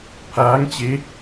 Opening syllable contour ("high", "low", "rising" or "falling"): rising